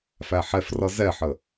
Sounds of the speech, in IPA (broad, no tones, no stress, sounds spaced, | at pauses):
f æ ħ ɛ f r ʌ z ɛ ħ ə